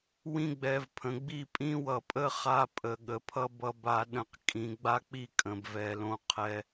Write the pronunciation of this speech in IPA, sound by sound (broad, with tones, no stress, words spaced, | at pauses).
wĩ˦ɡ͡bɛ˨vpʰə̃˨ ɡ͡bi˦˨pʼĩ˦wʌ˨pʼə˦ χa˦pʼə˨ ɠə˨pʰʌ˦ bʌ˦ba˦ ɗə̃˦q kʼĩ˨ɡ͡ba˦k͡pi˦ kʼə̃˨bvɛ˨lõ˦ qʰɛ˦